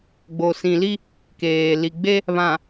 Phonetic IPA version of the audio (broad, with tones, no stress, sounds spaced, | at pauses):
ɡ͡b o˨ s ĩ˨ l i˦ | k eː˨ l i˨ ɡ͡b e˦ | β ã˨